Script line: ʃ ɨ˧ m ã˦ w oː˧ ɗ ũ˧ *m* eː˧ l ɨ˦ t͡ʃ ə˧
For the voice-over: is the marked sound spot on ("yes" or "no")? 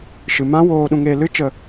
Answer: no